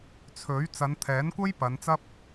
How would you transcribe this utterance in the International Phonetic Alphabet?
t͡sʰ ɵ˨˥ ɥ t͡s ɐ˨˧ n t̪ʰ ɛː˨˥ n kʷ ɐ˥ j p ɐ˨˧ n t͡s ɐ˥ p̚

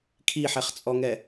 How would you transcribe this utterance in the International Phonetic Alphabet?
kʰ i ħ ɛ χ t͡sʼ ɔ ŋ ɛ

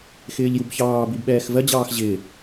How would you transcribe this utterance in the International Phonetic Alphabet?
x ɪː ʎ j u b ç ɑː b i b ɓ ɛː x v ɜ d͡ʑ ɑː x ʑ ɪː

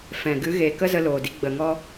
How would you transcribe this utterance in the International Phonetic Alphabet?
f ɛ̃˨ ɡ ɨ˨˦ ɣ eː˨ k ə˦ z ə˧ l oː˨ d i˧ ɡ͡b ə˨ ŋ ɔ˧

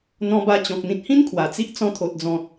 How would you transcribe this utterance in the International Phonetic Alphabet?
n̪ ɔ̃˧ b a˧ t͡ɕ ɔ̃˨ k̚ n̪ ĩ˨ t̚ h ĩ˦ n kʰ w a˨˩ t͡s i˦ ʔ t͡s ɔ̃˧ t̪ʰ o˨ t̚ d͡z ɔ̃˨ t̚

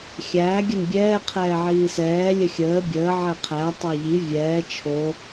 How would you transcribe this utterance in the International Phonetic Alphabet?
xʲ æː ɡʲ ə n bʲ ɛː qʰ ɛː ʕ iː s ɛː lʲ ə xʲ əː bʲ əː ʕ ɛ qʰ æ tˤ æ ʎ i vʲ ɛː t͡ʃʰ o

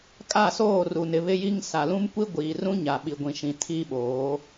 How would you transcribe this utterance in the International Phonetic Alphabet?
kʼ a˦˨ s oː˦˨ r u˨ n ɪ˨ β ɪ˦ j i˦ ŋ s a˨ l ũ˦ m kʷ i˦ ɡʷ iː˨ r ũ˦ ɲ a˨ ɓ i˨ ɡʷ ĩ˨ ʃ ĩ˨ tʰ i˦ ɓ oː˨˦

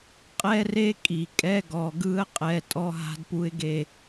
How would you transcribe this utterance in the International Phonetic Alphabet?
qʼ ɛ˦ r e˦ kʼ i˨ kʼ ɛ˦ ɡ ɔ˨ ɡ ɯ˦ ə̯ qʼ ɛ˨ tʼ ɔ˦ ɦ a̤˦ d p u˦ ɪ̯ ɡ e˦˨

